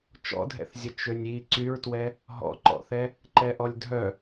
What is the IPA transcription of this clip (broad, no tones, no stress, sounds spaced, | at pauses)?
t͡ʃ ɔ̰ dʱ ɛ̰ θ zʲ ə t͡ʃ ø nʲ i ǀ y ɹ t w ɛ | ɦ ɔ̰ ǃ ɔ̰ θ ɛ | ǃ ɛ ʔ ɔ lʲ dʱ œ